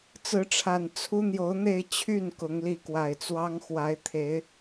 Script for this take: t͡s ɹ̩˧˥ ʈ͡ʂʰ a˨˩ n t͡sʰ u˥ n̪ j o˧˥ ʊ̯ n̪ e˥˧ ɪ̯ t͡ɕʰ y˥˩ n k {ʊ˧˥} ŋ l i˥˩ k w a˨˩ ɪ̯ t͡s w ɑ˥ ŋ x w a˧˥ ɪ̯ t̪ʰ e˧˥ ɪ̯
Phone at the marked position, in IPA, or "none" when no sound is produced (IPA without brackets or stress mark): ʊ˧˥